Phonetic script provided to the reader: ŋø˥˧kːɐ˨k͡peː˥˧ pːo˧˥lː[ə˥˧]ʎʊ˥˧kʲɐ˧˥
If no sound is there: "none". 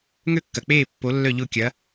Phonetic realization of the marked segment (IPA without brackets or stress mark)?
œ˥˧